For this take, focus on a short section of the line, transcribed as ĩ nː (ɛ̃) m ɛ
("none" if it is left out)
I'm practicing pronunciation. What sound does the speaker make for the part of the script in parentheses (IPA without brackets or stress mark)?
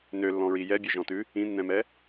ɛ̃